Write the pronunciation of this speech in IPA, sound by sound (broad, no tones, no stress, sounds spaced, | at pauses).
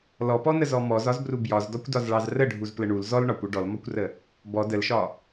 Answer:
l ɔ p ɔ n ə z ɔ m ɔ z ɒ z b r u b j ɒ z d ɔ kʷ d ɒ z ɭ ɑ z r ə ɖʱ u z p l ə ɳ u l z ɔ l ɳ ɒ kʷ ɒ ɖ ɔ l m ɒ kʷ r ə | b ɔ d ə l ʃ ɒ